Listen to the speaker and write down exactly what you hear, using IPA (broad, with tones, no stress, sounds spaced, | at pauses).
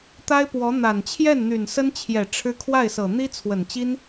t̪ a˥ ɪ̯ p w ɔ˧˥ n̪ a˨˩ n t͡ɕʰ j ɛ˥˩ n n̪ y˨˩ n s ə˥ n t͡ɕʰ j ɛ˨˩ ʈ͡ʂʰ ɻ̩˥ kʰ w a˥˩ ɪ̯ s ɤ˨˩ n̪ i˥ t͡sʰ w ə˨˩ n t͡ɕ i˥ n